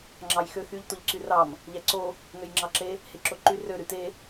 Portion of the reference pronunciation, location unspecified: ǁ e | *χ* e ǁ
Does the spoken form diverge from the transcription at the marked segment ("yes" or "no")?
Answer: yes